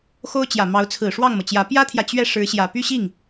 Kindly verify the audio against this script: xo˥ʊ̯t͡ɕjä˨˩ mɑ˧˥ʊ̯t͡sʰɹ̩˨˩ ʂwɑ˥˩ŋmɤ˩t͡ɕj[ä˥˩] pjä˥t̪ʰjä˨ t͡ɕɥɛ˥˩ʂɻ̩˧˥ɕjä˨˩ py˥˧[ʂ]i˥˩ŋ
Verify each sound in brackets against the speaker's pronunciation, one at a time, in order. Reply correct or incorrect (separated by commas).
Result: incorrect, incorrect